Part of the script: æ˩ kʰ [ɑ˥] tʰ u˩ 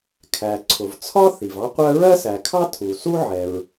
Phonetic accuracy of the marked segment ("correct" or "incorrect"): correct